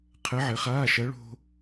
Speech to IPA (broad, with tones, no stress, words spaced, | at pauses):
qʰɘ˧˥ʕɘ˩˥χaː˧˥˧ʃɐ˧˥ ɭo̤˥